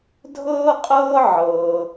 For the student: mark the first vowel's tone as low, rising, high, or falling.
high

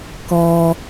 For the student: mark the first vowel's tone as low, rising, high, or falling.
low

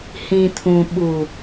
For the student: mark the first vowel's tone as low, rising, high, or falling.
low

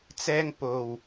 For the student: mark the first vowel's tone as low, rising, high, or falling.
high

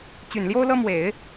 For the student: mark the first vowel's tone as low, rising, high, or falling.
low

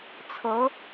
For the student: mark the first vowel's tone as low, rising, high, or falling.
rising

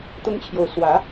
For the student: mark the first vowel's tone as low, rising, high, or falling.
high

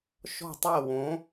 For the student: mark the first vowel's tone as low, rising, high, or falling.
falling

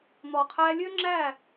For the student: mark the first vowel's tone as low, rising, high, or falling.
low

